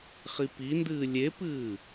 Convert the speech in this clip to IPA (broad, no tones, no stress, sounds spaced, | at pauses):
χ i p i n d ɨː lʲ e p ɨː